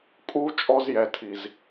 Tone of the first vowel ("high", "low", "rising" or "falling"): high